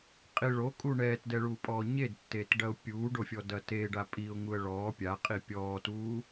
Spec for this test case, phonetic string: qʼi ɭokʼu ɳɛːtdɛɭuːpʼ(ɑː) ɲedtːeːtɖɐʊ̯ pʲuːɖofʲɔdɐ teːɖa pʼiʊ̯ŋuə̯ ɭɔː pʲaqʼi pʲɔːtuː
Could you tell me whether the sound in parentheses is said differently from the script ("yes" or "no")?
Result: yes